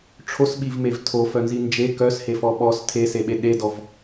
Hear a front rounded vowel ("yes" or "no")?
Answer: yes